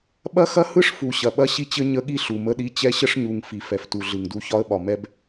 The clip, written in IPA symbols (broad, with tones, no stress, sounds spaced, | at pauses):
ɓ ɐ˦ x ɐ˦ h ɯ˦ ʂ f u˨ ɕ ɐ˨ ɓ ɐ˦ ɕ i˦ t͡ɕ ɘ˦ ɲ ə˦ ɠ i˦ ɬ u˨ m ə˦ ɗ i˦ t͡ɕ ɛ˦ ɕ ə˦ ʂ ɲ u˨ ŋ f i˨ f ɛ˨ f t u˨ ɮ ɯ˨ ŋ d u˦ ç ɒ˦ ə̯ ɓ ɒ˨ m ɛ˦ b